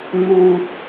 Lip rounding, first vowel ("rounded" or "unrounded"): rounded